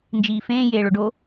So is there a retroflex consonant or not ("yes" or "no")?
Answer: yes